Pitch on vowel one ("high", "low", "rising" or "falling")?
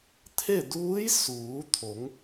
falling